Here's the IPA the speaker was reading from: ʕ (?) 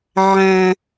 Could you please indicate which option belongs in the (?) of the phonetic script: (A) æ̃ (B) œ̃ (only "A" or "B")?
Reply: A